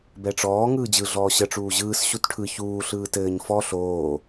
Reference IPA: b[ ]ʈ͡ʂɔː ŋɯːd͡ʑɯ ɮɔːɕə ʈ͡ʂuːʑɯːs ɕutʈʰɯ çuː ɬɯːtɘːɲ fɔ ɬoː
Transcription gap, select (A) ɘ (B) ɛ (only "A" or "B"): B